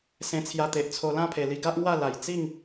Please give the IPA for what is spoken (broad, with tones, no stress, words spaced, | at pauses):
sẽ˧t͡sʰja˧t̪e˨ʔt͡sʰo˧ lã˥˧pʰe˨˩li˧ ɡa˦ʔŋwa˥˧la˨˩j t͡si˥˧ŋ